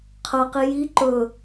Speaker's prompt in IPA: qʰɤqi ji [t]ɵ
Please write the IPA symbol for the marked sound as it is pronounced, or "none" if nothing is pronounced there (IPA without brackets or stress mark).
ǃ